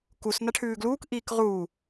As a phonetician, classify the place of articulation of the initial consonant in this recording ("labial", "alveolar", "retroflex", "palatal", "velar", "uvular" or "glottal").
velar